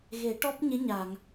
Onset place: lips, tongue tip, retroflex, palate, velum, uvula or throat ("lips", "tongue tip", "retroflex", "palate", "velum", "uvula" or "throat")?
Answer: velum